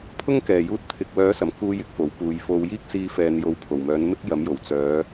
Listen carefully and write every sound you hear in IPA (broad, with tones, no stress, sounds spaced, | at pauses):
pʰ ʊ˥ ŋ k ɛː˨˩ j uː˧ t̚ t̪ʰ ɪ˨ k̚ w œː˨˥ s ɐ˨˩ m k uː˧ j ɪ˨˥ k̚ f o˨˩ w p uː˨ j f o˧ w j iː˥ k̚ s iː˧ f ɛː˨ n j o˨ w pʰ o˨˩ w m œː˨˥ n m ɪ˥ k̚ j ɐ˨˥ m j o˨˩ w t͡s œː˨˧